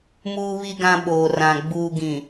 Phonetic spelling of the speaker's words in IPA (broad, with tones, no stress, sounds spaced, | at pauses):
m uː˨ β i˨ ɡ ã˨ ɓ oː˨ r ã˨ ɡ͡b uː˨ ɡ ĩ˨